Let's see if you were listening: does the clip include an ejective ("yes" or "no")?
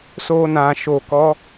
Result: no